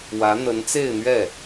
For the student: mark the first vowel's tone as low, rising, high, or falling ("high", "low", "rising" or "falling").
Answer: rising